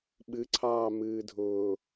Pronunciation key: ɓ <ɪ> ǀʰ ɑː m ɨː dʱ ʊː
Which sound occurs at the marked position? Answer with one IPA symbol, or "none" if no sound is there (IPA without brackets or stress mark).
ɨ